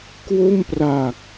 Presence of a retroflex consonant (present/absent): absent